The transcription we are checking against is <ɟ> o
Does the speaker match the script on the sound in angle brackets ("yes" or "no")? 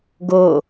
no